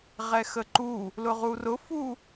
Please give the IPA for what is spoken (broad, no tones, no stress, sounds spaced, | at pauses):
ʁ ɛ x ə ǃ u | l ʊ ʁ u r ʊ f u